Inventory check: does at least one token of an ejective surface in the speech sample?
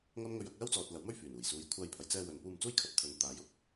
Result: no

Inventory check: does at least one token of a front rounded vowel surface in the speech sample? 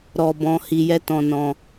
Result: no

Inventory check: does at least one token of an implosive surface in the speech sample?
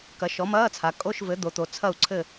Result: no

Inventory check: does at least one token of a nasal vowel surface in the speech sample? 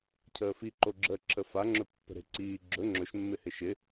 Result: no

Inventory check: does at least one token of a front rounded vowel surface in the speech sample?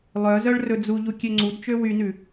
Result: yes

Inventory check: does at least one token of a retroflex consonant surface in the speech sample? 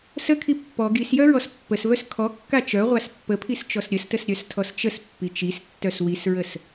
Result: no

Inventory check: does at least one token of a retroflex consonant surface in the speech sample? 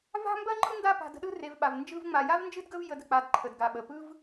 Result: no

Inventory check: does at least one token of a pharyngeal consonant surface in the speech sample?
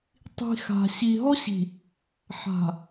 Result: yes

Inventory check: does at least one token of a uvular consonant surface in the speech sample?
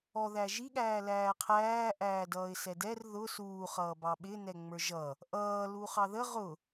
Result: yes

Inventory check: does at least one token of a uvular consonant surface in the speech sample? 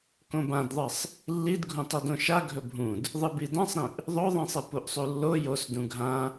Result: no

